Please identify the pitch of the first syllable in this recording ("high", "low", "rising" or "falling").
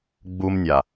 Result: high